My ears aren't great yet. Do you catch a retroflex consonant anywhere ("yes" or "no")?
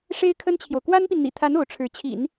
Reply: yes